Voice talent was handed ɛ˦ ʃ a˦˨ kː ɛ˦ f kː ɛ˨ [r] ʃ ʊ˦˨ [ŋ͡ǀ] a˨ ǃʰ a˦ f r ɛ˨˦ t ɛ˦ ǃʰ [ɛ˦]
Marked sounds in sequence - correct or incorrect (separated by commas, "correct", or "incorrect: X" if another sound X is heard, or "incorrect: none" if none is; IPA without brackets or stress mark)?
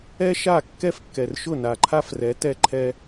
correct, incorrect: n, correct